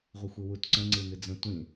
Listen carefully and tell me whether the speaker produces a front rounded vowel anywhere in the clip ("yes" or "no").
no